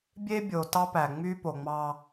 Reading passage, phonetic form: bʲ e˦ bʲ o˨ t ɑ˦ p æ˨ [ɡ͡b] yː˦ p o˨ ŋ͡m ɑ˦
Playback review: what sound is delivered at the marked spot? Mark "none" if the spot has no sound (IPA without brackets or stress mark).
ŋ͡m